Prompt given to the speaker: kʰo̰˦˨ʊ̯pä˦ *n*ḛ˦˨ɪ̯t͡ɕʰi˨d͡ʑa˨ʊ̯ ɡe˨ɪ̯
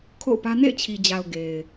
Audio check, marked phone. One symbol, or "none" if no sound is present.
n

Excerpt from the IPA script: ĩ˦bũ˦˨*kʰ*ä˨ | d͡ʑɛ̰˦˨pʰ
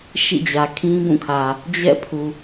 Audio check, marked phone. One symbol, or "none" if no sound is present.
kʰ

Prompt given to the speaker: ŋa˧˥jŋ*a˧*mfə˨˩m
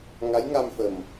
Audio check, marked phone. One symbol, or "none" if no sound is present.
a˧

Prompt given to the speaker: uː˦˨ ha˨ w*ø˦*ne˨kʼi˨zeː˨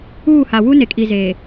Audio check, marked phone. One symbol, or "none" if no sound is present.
u˦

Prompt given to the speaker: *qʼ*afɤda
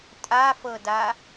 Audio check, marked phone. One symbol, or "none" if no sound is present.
tʼ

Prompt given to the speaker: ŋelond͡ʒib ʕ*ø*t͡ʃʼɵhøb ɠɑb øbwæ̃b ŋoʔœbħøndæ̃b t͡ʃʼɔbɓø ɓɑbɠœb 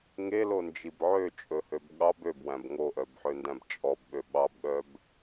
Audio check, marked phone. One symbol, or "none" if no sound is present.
ø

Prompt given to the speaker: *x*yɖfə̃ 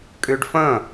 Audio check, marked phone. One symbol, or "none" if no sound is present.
kʼ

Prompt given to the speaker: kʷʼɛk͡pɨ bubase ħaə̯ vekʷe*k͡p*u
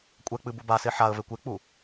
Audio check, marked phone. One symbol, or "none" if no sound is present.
k͡p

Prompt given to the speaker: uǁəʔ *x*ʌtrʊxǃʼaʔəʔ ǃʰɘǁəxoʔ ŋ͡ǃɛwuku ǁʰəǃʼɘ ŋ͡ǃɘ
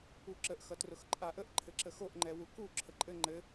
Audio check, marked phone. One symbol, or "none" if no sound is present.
x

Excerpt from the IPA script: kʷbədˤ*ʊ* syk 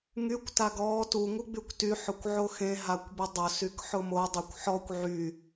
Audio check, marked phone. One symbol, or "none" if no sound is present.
ʊ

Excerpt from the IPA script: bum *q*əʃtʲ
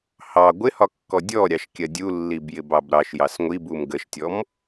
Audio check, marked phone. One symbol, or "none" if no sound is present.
ɡ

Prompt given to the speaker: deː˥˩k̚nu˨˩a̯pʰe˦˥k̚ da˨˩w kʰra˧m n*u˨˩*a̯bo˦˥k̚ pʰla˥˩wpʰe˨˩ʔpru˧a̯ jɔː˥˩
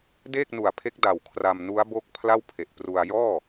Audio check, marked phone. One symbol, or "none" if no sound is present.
u˦˥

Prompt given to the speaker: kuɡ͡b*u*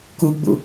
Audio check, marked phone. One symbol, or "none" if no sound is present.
ṵ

